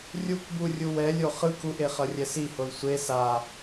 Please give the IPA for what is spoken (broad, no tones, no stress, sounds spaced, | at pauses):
rʲ u k b u rʲ u w ɛ lʲ o χ ɯ k u ʔ e χ ʌ rʲ ɛ s i h o l sʷ e s a